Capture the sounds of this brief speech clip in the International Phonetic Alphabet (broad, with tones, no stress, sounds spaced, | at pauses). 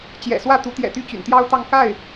t͡ɕ j ɛ̰˨˩ s w ä˥˩ t̪ u˧˥ t̪ j ɛ̰˨˩ t̪ y˥˩ t͡ɕ y̰˨˩ n t̪ j ɑ˥ ʊ̯ t̪ ɑ˥˧ ŋ k a˥˩ ɪ̯